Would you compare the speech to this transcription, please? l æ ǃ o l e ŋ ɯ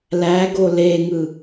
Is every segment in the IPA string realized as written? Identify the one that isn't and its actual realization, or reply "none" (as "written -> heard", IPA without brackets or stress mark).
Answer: ǃ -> ɡ